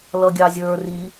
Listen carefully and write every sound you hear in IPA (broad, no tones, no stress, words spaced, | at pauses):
lʌɡʲɑzʲə˞ ri